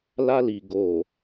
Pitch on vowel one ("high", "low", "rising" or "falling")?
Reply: high